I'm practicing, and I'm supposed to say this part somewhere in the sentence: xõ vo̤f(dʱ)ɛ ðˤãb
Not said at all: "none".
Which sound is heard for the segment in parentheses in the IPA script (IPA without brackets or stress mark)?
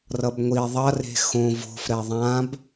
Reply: ɾ